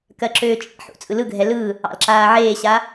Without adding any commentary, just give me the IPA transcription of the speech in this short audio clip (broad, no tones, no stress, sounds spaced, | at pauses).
k ɜ ǁ øː t͡ʃʼ ḛ ħ ṵ t͡sʼ ɯ l ɯ ɡʱ ɛ l ɯ | ɑ̰ l ǁ aː ʕ eː ɕ a